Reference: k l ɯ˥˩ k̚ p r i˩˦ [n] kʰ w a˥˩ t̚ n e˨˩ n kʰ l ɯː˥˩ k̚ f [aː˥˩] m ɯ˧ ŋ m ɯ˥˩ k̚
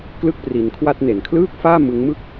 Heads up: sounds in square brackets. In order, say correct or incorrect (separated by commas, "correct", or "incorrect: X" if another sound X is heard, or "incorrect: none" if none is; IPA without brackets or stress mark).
correct, correct